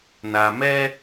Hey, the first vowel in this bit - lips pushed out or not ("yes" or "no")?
no